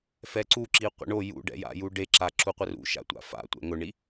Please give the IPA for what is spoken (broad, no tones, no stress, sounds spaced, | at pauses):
f ɛ ǀ u ǁ i qʷ ɛ̰ ɳ o j ṵ ɖ ɛ̰ j a̰ j u ɖ e ǁ a ǁ u qʷ ɪ r ṵ ʃ a̰ tʷ a̰ f a̰ tʷ ɛ̰ ŋ ʊ ɳ i